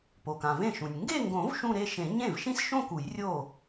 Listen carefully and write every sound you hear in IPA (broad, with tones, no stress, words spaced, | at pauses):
po˩kã˩vẽ˥˩ʃũ˩nʲ ŋɡe˥˧ŋɡõ˨˩˦v ʃũ˥˧ɾe˥˧ʃẽ˨˩˦ ɲẽ˥˩v ʃĩ˥˧sʃõ˥˧ ku˨˩˦jrʲo˥˩